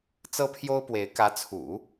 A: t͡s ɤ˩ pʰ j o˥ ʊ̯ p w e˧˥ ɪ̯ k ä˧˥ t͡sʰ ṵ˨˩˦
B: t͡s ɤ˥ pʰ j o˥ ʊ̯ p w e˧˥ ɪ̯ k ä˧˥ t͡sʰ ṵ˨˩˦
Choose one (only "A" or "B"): B